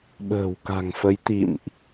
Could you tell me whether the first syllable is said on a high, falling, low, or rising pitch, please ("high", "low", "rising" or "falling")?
low